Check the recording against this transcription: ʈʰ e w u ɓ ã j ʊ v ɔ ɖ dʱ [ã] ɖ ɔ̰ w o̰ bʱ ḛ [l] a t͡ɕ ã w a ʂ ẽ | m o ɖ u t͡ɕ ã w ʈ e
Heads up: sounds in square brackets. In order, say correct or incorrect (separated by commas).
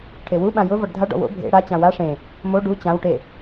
incorrect, incorrect